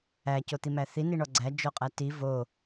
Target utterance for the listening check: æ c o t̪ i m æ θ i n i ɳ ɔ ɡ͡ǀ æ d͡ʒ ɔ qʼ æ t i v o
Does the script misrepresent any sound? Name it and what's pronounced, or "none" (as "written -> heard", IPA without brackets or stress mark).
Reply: none